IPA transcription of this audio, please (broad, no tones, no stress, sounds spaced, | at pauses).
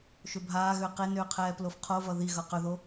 ʃ ʏ bʱ aː ɣ ʏː q e n ʏː qʰ ɛː p l o f qʰ o v ʌ ð i ɣ ʌ q ʏ ð o